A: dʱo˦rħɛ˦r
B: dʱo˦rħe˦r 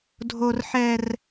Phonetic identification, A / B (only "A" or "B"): A